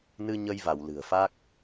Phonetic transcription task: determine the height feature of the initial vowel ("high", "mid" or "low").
high